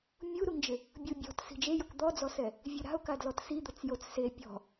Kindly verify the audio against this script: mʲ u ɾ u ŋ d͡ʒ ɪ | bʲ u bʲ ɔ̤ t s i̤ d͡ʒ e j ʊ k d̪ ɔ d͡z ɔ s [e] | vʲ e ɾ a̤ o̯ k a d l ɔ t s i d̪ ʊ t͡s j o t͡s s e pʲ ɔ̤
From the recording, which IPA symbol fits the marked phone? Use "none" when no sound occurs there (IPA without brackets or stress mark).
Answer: ɛ